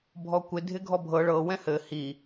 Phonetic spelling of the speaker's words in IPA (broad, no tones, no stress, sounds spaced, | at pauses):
bʱ ɔ kʷ ɪ dʱ ɪ ɡʱ ɔ bʱ ɤ ɭ ɤ w ɛ̃ h ɘ h i